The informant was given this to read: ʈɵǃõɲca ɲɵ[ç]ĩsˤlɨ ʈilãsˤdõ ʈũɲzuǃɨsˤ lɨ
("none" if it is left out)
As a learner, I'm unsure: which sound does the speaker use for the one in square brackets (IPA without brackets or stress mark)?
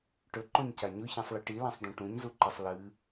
ç